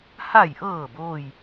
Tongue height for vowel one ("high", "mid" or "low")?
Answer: low